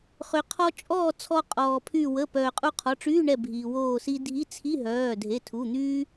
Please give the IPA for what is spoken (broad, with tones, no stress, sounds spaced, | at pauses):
χ ø˩ qʰ ɔ˧ t͡ʃʼ ɔː˥˨ t͡sʰ ɔ˧ qʼ ɔː˩ pʰ y˧˩ w ə˩˧˩ p œː˩ qʼ u˧ qʰ ɔ˩˧˩ ʈ͡ʂ yː˧˥˧ ɳ ɛ˧˩ bʱ iː˩ w oː˧˩ s i˧ dʱ i˧˥˧ t͡sʰ i˧˥˧ ɦ œː˩˧˩ dʱ e˩˧˩ tʰ u˩˧˩ n̪ yː˧